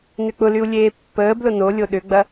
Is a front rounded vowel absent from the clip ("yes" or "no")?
no